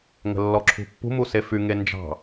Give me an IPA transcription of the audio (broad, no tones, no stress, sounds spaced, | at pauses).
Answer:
ŋ ə̤ lː ɔ ǁʰ ṳ pː ṳ m u s e f y ŋ e n d͡ʒ ɑ̤